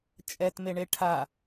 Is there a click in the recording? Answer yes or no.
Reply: no